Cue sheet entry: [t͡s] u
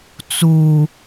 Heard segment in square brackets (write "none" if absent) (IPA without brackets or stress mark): t͡s